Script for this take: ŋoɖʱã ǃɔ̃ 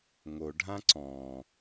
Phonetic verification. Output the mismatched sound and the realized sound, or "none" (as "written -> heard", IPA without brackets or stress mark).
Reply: ǃ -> ǀ